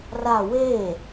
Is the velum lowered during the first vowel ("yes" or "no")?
no